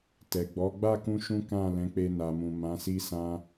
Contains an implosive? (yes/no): no